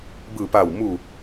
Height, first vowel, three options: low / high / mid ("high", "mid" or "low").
high